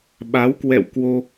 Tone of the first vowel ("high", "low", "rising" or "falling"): rising